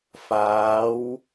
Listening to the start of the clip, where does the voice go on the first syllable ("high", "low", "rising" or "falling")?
rising